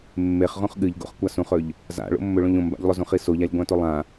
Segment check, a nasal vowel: present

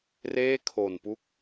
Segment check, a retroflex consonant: absent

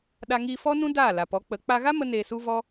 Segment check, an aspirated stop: absent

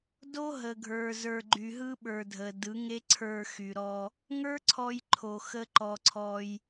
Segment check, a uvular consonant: absent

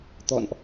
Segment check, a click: absent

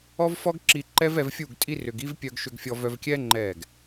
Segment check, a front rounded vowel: present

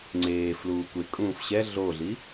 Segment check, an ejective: present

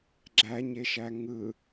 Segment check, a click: present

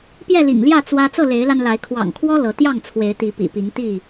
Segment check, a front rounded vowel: absent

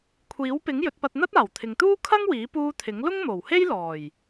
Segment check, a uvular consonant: absent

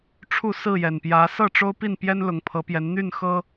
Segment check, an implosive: absent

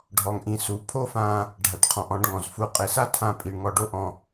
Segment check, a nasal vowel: present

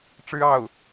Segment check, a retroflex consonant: present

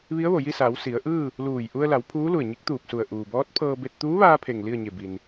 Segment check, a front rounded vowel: absent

